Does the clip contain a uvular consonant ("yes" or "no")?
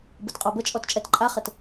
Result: yes